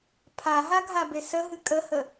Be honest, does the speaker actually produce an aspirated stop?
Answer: yes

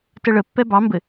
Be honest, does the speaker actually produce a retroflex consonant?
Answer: yes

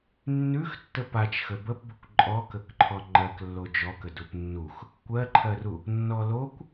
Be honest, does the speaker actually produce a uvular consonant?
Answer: no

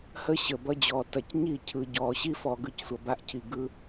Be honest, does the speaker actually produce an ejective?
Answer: no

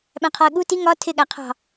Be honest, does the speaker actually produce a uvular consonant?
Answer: yes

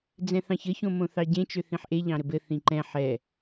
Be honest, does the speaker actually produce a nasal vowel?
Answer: yes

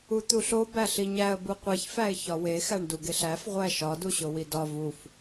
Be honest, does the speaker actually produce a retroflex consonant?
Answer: yes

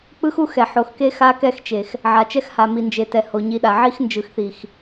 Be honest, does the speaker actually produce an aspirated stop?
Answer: no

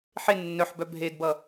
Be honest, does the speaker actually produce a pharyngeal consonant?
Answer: yes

